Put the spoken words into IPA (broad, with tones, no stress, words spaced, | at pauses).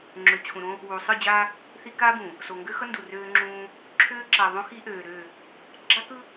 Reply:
ŋ͡ǁø˨t͡ɕʰũ˨ɾõ˦ | wu˨ sˤɯ˦˨d͡ʑa˦ | θi˦ kaː˦bũ˨ | so˨ŋɡø˦xʌ˦ ndu˨røː˦ŋ͡ǁũː˦ | ǁʰøː˦ǁa˨ðˤõ˦ xi˦ʔøː˨ɾø˦˨ | ɡ͡ǁa˦kɯ˦